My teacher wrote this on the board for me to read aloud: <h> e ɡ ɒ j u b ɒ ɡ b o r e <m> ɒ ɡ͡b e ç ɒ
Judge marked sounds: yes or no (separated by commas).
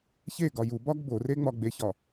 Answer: no, no